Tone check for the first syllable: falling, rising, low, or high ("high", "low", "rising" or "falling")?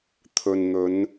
low